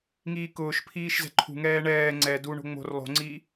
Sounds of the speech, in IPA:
ŋiːkʊːʃpʰiːʃ zɛ̤ǃʰṳŋɛː ɳɛː ŋ͡ǀɛ duɳo̤ ŋ͡mo̤r lˠo̤ŋ͡ǀiː

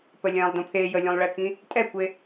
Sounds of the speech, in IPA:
pəlʲɛ̃lˠ dõpʰe jəlʲũlˠɭekĩ | tʼɛkʷe

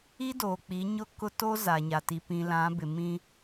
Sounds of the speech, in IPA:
i˦doː˨k͡pi˨˦ɲʊ˦ kʊ˦ to˦ za˨ɲa˨ti˨ pĩ˨lã˨˦bɪ˨ mĩ˦

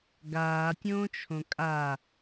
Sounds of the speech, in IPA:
ɡaːtʲõːt͡ʃʰõ kʼa

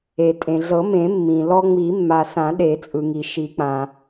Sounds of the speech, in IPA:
e˩tʼẽ˩ɮɤ˨˩˦mẽ˨˩˦ mːĩ˩ lɔ˧ŋ͡mi˨˩˦mːa˩ sã˨˩˦ɗe˨˩˦t͡sʼɯ˩ŋi˩ ʃi˨˩˦k͡pã˩

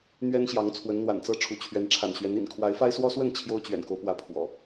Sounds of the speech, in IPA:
n̪ɥɛ˦nɕjɑ˨˦ŋ t͡sʰwə˨˦nn̪wa̰˨˩nt͡sɤ˥˨ ʈ͡ʂʰu˨˦t͡ɕʰɥɛ˨˦n ʈ͡ʂʰa̰˨˩nɕɥɛ˨˦n ḭ˨˩n kʰwa˨˦ɪ̯fa˦ɪ̯swɔ˦swə˥˨n t͡ɕʰjo˦ʊ̯t͡ɕɥɛ̰˨˩nko˦ʊ̯pwä˨˦ pʰwɔ̰˨˩

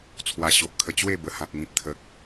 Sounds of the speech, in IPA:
t͡sʰwa˧ɕo˨ʔkʰə˧ t͡ɕwe˥˧bə˨˩hã˨k̚ ŋĩ˨p̚t̪ʰə˨k̚

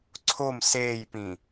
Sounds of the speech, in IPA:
ǀʰom seːjpĩ

